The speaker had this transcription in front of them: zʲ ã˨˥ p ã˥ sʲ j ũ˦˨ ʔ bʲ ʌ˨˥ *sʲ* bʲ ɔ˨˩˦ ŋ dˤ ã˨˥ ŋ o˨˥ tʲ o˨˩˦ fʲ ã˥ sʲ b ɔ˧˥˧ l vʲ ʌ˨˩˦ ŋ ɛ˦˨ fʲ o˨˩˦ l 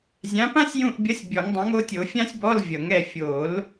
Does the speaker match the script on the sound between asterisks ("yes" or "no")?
yes